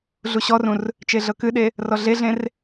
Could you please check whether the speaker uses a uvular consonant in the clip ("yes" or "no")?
no